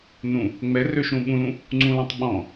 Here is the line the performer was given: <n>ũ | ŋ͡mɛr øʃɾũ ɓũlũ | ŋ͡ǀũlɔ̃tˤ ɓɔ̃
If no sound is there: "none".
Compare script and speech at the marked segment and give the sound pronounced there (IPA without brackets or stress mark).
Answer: n